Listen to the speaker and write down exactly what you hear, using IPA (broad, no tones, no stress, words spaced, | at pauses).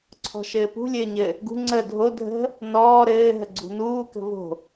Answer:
ǀʰɔ̤ʃɘːpṳ lʲɘːɲɘ | ɡṳ ŋ͡ǀə dʱo dʱə̤ | nɔː ɾɘː ɦəɡ͡ǀṳnuː kə̤vo̤